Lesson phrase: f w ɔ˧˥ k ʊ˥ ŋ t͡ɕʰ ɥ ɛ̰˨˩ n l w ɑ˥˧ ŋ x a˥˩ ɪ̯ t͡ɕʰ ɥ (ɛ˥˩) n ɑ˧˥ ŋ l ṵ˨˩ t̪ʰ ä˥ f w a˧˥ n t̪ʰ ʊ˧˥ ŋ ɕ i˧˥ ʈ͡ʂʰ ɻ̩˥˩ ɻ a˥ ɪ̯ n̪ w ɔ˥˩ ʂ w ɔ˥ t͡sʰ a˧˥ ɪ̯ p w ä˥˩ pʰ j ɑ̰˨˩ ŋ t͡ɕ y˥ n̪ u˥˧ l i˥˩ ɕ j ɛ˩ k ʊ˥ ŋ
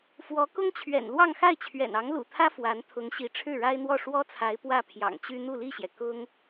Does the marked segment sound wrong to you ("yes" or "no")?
yes